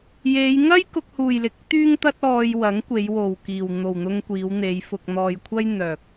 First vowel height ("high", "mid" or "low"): mid